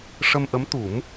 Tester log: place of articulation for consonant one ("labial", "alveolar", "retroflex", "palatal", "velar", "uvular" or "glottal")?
retroflex